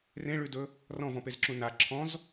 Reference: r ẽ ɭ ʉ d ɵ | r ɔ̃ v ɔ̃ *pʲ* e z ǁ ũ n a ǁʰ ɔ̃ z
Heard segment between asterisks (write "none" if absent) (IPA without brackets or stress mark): p